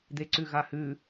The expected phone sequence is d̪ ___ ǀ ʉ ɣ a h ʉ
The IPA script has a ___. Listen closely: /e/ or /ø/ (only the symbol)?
e